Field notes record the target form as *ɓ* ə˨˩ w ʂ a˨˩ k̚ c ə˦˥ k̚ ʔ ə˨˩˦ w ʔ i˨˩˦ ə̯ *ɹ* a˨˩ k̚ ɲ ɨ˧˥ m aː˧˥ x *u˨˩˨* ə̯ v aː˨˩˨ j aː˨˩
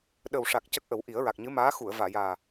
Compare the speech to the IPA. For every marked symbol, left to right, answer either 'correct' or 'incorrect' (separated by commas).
incorrect, correct, correct